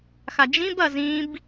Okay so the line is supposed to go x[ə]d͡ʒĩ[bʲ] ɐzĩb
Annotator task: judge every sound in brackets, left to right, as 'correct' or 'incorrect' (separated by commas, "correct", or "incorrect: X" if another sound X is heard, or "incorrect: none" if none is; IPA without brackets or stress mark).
incorrect: a, incorrect: b